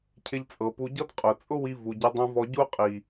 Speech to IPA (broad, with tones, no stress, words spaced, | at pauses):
cʰɪ˧ʎt͡sʼɤ˨pu˧ɟɤ˦d qʼʊ˨ t͡sʼʊ˦wi˧ vu˨ɟi˧dˤũ˧vɔ˧ ɟu˦qʼi˨